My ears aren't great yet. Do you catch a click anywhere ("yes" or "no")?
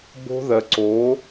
yes